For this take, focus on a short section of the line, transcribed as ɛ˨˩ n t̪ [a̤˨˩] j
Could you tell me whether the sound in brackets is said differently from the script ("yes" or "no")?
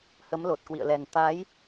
yes